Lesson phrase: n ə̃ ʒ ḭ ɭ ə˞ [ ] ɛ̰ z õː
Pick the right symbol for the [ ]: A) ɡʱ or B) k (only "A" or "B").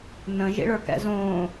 B